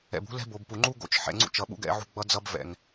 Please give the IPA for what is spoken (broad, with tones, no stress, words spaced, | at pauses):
ɛ̰˨bṳ˦ lɛ̤˦ bo˨bpu˨ ŋ͡ǃu˦ ɡo̰˦t͡ʃ ħɛ̰˨ŋ͡ǀṵ˦t͡ʃʌ˨ɓṵ˦ ɡɛ̰˦ʕṳ˦ ɡ͡bʌ˦d͡zʌ˦b vɛ̰˨ŋ